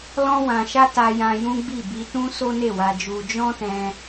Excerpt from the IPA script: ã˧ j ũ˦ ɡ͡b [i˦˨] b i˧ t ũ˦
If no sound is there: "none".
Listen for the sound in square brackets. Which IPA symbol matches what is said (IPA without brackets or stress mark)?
i˦˨